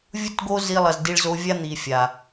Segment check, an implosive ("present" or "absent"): absent